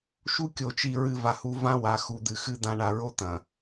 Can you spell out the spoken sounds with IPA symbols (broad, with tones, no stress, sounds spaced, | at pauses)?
ʃ u˦ kʲ o˨ t͡ʃ i˨ ɹ ɨ˨ v a˨ h u˦ v ã˦ w a˨ x u˨ d̪ ɨ˨ x ɨ˦ d̪ ã˦ ɳ a˨ ɹ o˦ t̪ ɐ̃˨